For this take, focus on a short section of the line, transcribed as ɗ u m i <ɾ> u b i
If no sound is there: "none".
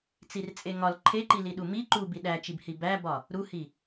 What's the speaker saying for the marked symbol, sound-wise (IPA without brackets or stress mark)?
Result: ǃ